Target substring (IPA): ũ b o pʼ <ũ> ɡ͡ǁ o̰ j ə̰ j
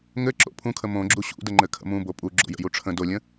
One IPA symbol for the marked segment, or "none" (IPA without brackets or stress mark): u